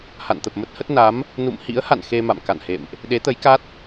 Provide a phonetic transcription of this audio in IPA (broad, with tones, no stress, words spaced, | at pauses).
ha̰˧˨nt̪ə˨˩p̚mə˦˥t̚hə˦˥t̚ na˨˦m | nṵ˧˨mhḭ˧˥ə̯ha̰˧˨n xe˧ma̰˧˨mka̰˧˨nhḛ˧˨mʔ | ɗe˨˦t̪ə˨˦jka˦˥t̚